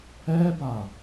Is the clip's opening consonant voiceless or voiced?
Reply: voiced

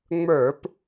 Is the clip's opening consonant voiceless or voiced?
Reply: voiced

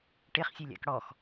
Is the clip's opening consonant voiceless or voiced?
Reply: voiceless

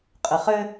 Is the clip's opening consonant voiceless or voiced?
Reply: voiceless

